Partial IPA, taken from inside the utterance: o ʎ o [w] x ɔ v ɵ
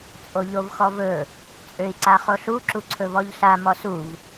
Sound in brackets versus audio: incorrect: v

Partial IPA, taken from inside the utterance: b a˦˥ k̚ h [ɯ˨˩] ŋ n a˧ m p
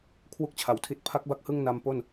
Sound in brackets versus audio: incorrect: ɯ˥˩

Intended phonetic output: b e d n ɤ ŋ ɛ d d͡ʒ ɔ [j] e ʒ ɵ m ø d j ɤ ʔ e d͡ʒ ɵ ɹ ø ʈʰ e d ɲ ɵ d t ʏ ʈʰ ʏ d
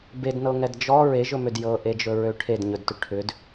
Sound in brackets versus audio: incorrect: ɹ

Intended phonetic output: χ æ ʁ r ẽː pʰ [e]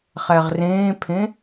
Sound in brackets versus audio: incorrect: ẽ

